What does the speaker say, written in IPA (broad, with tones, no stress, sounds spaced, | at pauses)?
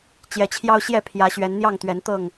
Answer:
t͡ɕ j ɛ˨˦ t͡ɕʰ j ɑ˦ ʊ̯ ɕ j ɛ˥˨ pʰ j ä˨˦ ɕ ɥ ɛ˨˦ n n̪ j ɑ˥˨ ŋ t̪ ɥ ɛ˨˦ n t̪ ɤ˥˨ ŋ